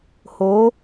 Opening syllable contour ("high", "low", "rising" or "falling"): rising